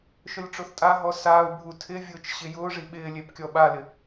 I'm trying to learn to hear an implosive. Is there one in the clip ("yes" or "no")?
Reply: yes